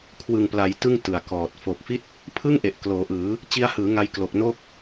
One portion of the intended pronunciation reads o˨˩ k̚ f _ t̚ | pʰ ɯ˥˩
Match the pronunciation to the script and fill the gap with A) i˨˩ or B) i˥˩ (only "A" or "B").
B